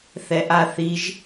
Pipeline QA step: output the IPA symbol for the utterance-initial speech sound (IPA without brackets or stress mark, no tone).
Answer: θ